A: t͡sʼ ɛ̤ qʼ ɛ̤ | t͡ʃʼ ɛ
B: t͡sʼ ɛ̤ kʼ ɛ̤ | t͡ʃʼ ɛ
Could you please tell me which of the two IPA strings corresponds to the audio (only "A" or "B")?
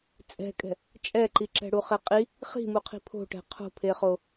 B